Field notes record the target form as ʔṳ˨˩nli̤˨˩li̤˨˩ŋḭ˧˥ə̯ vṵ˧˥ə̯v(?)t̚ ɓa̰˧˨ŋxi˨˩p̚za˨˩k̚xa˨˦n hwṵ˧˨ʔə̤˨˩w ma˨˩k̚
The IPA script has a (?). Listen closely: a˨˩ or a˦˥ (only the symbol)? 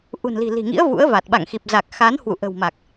a˨˩